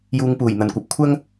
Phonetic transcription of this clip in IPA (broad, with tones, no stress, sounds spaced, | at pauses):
j uː˨˧ ŋ p uː˨˩ j n̪ ɐ˨ n kʷ ɐ˨˥ p̚ kʷʰ ɐ˥ ŋ